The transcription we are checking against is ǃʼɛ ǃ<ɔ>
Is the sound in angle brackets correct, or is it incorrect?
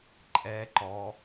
correct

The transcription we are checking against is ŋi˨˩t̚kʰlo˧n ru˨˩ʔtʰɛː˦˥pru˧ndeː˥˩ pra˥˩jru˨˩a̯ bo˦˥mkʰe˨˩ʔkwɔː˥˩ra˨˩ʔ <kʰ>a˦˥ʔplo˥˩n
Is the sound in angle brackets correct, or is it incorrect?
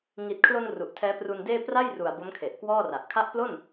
correct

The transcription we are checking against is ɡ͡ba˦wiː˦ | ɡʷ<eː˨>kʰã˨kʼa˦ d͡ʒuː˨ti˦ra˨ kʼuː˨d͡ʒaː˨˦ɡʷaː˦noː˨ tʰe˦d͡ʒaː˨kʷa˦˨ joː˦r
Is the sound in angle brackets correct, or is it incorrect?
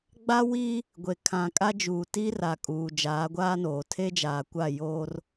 incorrect: e˨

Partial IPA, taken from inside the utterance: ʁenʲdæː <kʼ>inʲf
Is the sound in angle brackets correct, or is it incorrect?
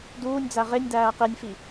incorrect: q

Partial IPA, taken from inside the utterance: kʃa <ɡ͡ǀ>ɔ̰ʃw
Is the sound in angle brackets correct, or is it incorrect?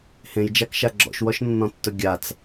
incorrect: ɡ͡ǁ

